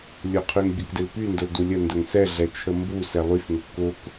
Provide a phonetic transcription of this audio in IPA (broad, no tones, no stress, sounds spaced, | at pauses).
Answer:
lʲ ʊ qʰ y ŋ bʲ ʊ k d ɪ l p y n d ʊ l d u lʲ ə n d ə ŋ s ɛ ɮ ɛ t͡ʃʰ ə m b u s ɛ lˠ y f ŋ ʊ k ʊ k